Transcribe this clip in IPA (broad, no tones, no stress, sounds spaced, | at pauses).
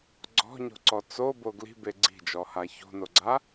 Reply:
ɡ͡ǀ ɔ̤ ɲ o̤ ǀ ɔ t͡s o b o ɡ l i̤ b e ɡ͡ǀ i̤ d͡ʒ ɔ h a ç o̤ n o ɡ͡ǀ a